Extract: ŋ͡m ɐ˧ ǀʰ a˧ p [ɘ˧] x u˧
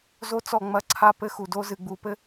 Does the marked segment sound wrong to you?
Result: yes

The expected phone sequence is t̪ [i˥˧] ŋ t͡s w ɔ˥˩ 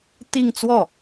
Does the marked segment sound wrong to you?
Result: no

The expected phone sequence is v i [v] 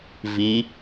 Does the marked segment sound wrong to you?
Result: yes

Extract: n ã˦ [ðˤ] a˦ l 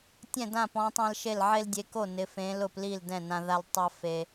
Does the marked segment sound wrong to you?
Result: yes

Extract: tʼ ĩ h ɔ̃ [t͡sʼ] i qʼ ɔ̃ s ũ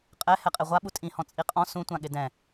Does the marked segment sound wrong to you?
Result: no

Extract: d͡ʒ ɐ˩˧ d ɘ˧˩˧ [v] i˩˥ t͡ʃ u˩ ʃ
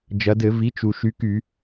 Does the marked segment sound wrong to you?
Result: no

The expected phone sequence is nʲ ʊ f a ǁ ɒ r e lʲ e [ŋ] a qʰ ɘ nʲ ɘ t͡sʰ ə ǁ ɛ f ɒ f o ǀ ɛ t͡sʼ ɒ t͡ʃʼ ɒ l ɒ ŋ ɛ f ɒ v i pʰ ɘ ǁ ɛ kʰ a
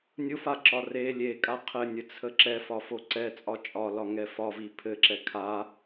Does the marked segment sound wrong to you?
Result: yes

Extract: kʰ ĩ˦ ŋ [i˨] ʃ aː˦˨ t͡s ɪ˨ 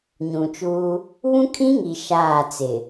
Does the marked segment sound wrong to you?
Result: no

